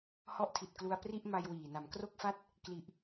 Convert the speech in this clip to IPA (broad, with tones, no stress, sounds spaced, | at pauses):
h ɔ˦˥ ʔ tʰ i˨˩ t̚ k l u˧ a̯ p r i˥˩ ʔ m a˧ j w iː˨˩ n a˩˦ m k r o˥˩ k̚ f a˥˩ t̚ | k l i˨˩ ʔ